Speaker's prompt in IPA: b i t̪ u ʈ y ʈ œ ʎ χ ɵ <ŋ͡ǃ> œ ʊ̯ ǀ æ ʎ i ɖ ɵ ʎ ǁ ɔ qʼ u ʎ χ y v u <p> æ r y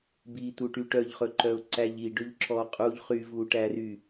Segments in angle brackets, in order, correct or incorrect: incorrect, incorrect

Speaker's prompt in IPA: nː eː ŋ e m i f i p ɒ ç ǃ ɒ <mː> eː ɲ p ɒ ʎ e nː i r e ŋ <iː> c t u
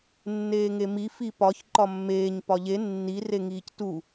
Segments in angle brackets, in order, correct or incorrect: correct, correct

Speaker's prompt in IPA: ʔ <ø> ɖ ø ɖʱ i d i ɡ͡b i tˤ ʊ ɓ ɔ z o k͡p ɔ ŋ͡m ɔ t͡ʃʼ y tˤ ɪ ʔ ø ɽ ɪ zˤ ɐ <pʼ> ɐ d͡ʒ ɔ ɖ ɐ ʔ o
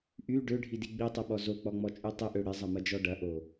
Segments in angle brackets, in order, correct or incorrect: incorrect, incorrect

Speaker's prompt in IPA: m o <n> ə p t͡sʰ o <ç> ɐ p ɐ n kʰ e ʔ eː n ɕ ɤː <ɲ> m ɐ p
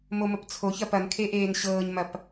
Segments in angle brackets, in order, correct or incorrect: incorrect, correct, correct

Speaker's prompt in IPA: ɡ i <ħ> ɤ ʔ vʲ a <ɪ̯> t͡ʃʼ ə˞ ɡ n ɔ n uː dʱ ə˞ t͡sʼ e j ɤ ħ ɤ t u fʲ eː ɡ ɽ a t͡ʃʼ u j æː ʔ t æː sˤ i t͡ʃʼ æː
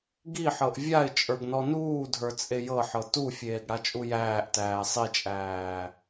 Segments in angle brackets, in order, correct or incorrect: correct, correct

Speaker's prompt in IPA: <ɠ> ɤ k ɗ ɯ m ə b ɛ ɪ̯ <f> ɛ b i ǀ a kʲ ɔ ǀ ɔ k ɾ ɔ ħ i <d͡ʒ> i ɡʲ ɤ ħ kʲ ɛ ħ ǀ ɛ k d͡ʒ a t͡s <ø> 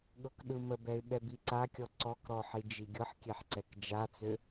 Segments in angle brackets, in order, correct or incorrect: correct, incorrect, correct, correct

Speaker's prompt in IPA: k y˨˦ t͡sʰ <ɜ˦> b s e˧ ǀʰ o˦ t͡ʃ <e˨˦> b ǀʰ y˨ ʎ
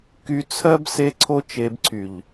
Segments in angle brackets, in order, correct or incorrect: correct, correct

